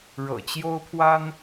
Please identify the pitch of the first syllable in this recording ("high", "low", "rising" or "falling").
low